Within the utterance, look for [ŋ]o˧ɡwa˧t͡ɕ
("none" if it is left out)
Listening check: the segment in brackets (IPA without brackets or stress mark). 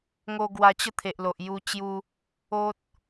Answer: ŋ